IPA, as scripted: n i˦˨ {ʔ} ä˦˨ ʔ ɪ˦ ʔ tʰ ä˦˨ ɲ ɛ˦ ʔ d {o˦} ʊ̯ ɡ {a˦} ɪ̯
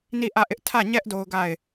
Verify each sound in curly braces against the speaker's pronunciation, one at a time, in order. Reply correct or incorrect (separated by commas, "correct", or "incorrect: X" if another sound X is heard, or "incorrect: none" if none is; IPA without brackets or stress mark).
correct, correct, incorrect: a˦˨